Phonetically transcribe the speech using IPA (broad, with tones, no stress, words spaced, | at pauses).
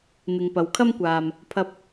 n̪ɪ˨ŋpɐ˨wkʰɐ˥mkʷaː˧m | pʰɐ˧p̚